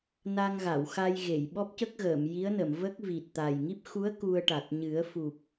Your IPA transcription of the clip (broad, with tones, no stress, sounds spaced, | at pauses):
n a˧ ŋ ɣ a˨˩˨ w x a˧ j ɣ e˨˩˨ j ɓ ɔ˦˥ p̚ c ə˦˥ k̚ ɣ əː˨˩˨ m j i˧˥ ə̯ n ə˨˩˨ m v ə˦˥ k̚ v i˨˩ t̚ t̪ a˨˩ j ŋ i˦˥ p̚ x u˧˥ ə̯ k u˧ ə̯ ʈ a˨˩ t̚ ɲ ɨ˨˩˦ ə̯ f u˨˩ p̚